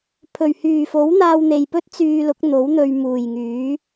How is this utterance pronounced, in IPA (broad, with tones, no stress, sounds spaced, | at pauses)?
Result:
pʰ ɵ˨˩ ɥ h yː˨˩ f o˨˥ w n̪ aː˧ w n̪ e˨ j p ɵ˥ t̚ t͡s yː˧ l ʊ˨˥ k̚ n̪ o˨˥ w n̪ ɵ˧ ɥ m uː˨˩ j ŋ yː˨˥